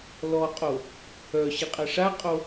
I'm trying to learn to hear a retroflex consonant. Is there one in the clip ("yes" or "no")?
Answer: yes